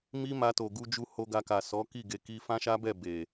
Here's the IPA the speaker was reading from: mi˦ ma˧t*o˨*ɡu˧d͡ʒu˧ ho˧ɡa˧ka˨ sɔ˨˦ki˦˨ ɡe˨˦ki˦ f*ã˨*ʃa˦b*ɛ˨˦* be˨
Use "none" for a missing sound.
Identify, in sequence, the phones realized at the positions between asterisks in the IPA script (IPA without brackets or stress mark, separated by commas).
o˨, ã˦, ɛ˦˨